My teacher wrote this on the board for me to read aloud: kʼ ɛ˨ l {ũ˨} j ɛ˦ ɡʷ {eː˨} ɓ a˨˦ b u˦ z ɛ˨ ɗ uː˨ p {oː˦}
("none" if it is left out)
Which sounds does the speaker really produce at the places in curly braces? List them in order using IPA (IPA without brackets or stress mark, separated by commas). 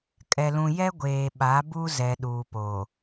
ũ˨, eː˨, oː˨